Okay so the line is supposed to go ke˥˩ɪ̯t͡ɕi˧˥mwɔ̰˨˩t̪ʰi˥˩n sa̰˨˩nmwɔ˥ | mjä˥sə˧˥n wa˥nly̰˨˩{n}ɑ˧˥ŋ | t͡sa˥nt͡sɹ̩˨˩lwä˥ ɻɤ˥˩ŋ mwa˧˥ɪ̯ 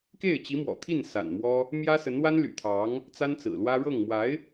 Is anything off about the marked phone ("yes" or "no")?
yes